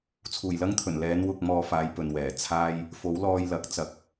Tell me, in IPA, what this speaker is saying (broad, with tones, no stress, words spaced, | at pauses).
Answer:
t͡sʰuː˨˩jlɐ˥ŋt̪ʰɵ˨˩n lɛː˨˧nwʊ˨k̚ mɔː˧faː˨˧j pɵ˨n wɛː˨˩ t͡sʰaː˥j | fo˨˥wlɔː˧jlɐ˨˥k̚ t͡sɐ˧k̚